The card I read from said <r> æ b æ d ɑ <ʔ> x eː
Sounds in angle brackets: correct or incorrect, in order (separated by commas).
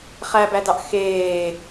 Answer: incorrect, correct